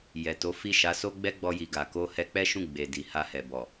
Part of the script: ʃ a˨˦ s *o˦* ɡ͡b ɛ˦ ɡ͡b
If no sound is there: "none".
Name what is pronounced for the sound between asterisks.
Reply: o˦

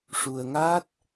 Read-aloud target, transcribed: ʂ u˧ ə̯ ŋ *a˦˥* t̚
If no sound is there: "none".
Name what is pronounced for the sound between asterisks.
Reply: a˦˥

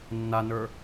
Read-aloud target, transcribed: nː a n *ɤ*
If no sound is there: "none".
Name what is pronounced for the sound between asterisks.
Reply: ə˞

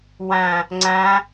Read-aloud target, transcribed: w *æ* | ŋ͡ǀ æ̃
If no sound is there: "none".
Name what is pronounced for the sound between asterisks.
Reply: æ̃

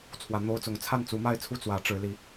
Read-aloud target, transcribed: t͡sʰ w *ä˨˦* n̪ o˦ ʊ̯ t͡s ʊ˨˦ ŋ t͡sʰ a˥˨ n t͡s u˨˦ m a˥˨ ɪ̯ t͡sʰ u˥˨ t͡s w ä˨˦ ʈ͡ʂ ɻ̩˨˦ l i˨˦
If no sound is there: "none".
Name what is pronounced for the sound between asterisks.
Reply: ä˨˦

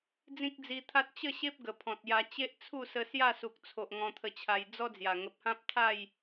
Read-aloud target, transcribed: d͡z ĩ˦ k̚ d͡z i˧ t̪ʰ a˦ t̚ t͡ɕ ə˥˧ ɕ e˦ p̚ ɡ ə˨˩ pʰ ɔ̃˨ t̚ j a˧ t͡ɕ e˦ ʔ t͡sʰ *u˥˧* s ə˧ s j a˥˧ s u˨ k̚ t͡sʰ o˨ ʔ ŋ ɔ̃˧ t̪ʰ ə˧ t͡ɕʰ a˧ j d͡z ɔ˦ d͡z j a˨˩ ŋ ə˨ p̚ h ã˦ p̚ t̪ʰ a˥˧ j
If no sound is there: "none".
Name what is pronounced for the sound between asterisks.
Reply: u˥˧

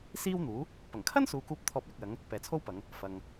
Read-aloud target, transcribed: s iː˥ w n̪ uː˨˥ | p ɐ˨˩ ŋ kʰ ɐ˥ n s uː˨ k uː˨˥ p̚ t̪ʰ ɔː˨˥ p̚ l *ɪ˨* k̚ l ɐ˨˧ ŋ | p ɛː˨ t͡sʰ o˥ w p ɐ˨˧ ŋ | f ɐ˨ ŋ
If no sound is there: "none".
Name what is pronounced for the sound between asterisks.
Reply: ɪ˨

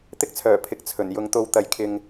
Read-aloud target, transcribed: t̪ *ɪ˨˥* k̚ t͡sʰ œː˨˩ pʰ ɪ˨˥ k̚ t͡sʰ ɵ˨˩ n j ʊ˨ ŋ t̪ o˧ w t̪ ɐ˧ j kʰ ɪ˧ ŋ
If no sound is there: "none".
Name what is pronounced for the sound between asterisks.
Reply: ɪ˥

